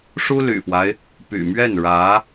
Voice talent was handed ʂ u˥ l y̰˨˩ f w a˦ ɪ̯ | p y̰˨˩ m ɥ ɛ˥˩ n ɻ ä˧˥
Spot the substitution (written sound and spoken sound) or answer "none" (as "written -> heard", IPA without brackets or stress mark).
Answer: none